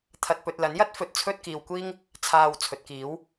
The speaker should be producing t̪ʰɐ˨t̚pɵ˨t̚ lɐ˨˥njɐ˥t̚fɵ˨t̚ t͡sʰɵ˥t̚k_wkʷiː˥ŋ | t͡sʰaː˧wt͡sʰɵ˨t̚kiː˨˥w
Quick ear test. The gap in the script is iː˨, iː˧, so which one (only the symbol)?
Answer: iː˧